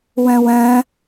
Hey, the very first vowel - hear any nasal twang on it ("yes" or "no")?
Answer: yes